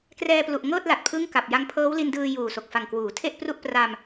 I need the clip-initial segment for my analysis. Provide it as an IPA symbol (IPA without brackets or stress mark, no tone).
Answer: k